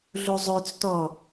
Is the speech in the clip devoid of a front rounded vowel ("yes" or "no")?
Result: no